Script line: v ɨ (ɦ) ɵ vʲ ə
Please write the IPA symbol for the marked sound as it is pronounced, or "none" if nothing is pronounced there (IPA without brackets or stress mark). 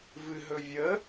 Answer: ɦ